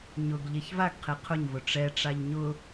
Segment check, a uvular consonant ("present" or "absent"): present